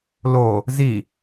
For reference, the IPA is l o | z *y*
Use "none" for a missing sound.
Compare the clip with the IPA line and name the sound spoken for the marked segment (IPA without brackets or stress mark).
i